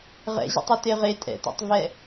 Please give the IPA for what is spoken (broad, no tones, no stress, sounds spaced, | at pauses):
ʁ ɛ̰ ʑ ɛ̰ tˤ o t e ʁ e tʼ ɛ̰ t a̰ tˤ v ɛ